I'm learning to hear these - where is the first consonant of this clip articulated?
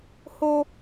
throat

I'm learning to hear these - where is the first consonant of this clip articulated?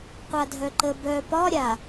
uvula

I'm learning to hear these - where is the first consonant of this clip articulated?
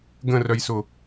velum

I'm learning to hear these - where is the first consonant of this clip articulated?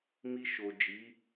lips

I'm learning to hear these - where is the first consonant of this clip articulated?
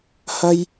throat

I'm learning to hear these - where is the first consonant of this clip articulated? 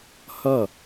throat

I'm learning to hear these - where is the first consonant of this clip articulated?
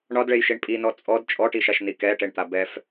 retroflex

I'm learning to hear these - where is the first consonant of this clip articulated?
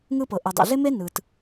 velum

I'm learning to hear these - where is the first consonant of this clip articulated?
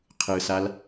uvula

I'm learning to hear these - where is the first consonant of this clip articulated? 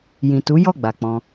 palate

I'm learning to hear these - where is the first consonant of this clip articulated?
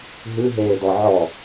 throat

